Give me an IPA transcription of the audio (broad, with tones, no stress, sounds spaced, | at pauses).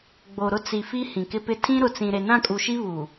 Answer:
ɡ͡b o˨ ɾ ʊ˦˨ t͡s i˨ f i˦ h ĩ˨ k ɪ˦ p ɪ˦ tʰ ĩ˦ ɾ ʊ˨ t͡s ĩ˨ ɾ e˨ n ã˦˨ kʼ u˨ ʃ i˦ β u˨